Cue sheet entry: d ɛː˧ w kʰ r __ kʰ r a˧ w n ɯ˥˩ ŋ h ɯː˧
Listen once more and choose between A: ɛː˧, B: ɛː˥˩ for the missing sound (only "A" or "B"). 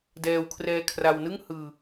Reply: A